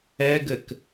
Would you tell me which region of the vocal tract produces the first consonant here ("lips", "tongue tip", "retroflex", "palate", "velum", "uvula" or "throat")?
velum